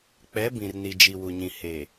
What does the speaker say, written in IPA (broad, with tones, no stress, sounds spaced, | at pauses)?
k͡p ɛ˨˦ b ĩ˨ r n i˨ d͡ʒ i˨ w u˨ ɲ ĩ˨ h e˨